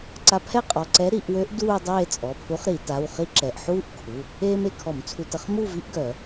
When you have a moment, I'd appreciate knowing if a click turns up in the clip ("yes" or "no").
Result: yes